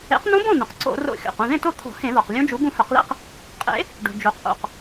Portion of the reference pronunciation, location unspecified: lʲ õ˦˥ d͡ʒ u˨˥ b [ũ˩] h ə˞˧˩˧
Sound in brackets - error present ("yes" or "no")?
yes